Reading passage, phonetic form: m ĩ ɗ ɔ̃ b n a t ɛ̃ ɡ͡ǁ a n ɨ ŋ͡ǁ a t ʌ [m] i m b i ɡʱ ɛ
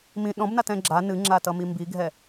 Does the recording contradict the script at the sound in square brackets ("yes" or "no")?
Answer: no